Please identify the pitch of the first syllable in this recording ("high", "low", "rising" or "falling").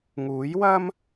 rising